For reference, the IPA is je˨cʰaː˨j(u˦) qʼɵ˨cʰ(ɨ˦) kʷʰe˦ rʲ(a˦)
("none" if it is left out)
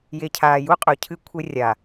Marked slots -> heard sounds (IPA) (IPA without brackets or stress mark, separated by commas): u˦, ɨ˦, a˨